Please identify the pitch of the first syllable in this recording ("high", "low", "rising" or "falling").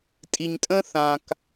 low